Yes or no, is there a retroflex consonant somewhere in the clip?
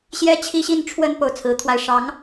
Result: yes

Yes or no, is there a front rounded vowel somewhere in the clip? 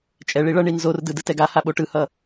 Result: no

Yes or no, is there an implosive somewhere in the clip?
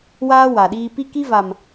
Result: yes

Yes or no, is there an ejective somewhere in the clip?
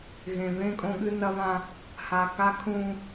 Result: yes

